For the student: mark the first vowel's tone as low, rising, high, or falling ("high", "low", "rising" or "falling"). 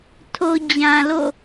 low